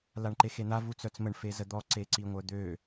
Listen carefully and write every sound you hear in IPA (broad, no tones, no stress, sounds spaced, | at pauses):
l a ɳ ǃ e x e n̪ a v u t͡s œ t͡s m ə ɳ f e z ə d̪ ɔ ǀ e ǀ i ŋʷ œ d̪ ø